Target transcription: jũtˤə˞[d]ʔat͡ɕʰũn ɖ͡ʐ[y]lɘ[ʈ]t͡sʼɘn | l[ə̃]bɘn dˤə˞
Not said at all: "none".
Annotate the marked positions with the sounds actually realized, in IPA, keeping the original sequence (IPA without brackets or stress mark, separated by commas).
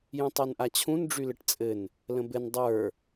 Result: n, y, ʈ, ə̃